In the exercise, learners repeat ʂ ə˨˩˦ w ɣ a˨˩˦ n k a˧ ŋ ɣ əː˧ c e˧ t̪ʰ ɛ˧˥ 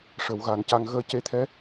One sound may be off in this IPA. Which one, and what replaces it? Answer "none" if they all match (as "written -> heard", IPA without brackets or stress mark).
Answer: k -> c